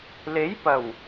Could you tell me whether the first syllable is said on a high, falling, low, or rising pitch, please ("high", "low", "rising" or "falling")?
rising